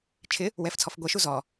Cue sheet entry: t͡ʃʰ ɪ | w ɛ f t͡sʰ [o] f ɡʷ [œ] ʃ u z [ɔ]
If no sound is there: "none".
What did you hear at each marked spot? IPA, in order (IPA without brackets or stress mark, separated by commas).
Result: ɔ, ɛ, ɔ